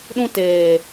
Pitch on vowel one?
high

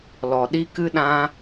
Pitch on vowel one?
low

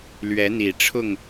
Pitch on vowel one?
rising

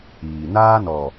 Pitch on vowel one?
low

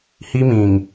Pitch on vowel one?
high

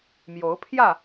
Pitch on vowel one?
rising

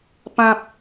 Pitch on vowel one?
high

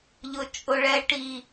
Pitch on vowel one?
low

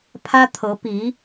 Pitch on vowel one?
high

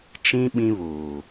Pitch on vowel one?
high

